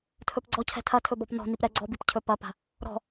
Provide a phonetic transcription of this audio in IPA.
tʰ ɵ p ɡ͡ǀ ɔ cʰ ɛ̤ tʰ ɐ tʰ ɵ b ɔ p n ɔ̤ n i p ɾ ɛ ɡ͡ǀ ɔ b i p cʰ ɵ p ɐ p a̤ | ɾ ɔ̤

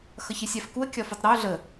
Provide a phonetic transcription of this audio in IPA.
x ʌ ç ɪ sʲ a f k u ə̯ kʲ ɒ f u tˤ ɾ ɒ ʊ̯ ɮ ə

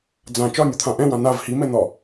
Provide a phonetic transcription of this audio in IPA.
d͡z ã t͡ʃ ɒ nʲ o t̪ʰ ã ʔ ɛ̃ w ã n a v h i m ɛ n̪ ɒ

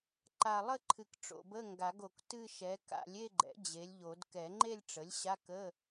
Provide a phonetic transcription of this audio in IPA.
ǃ a˨˩ lˠ ə˥˧ ǃʰ ɨ˨˩ k ʈ͡ʂ o̰˨˩ b ə˧˥˧ ŋ ɡ a˨˩˦ ɡ o˨˩ k t ɨ˥˧ ʃ ɛ˩˥ k a̰˨˩˦ lʲ e˥˧ ɡ͡ǃ ɛ̰˩˥ d͡ʑ e˩˥ lʲ ʎ o˨˩˦ d k ɛ˨˩˦ ŋ͡ǃ e˥˧ lʲ ʈ͡ʂ ə˩˥ lʲ ɕ a˧˥˧ k ə˧˥˧

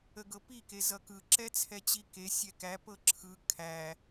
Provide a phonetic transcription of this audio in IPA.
ə ɡ ɤ p i k e z ʌ k ɯ ǁ ɛ t͡sʰ ɛ t͡ɕ i k e sʲ ɛ k æ p ɤ ǁʰ ɯ kʰ æ

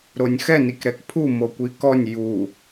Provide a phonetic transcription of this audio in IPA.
ɾ o nʲ x ɛ n i k ɾ ɛ k pʰ u m o kʷ i k ɔ nʲ j u

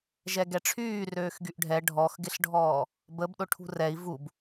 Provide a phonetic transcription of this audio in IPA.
ʒ ɛ ɡ ɛ ʈ͡ʂʰ yː r øː x ɡ y ʔ ɖʱ ɛ ɖʱ ɔ x ɡ ɪ ɬ ɖʱ ɔː | b ə b ɗ ʊ ʈʰ ṳ r ɛ i̯ v u b

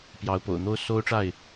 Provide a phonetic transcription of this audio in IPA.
p j ɑ˨˦ ʊ̯ p o̰˨˩ ʊ̯ n̪ o˦ ʊ̯ s o˦ ʊ̯ ʈ͡ʂ a˥˨ ɪ̯

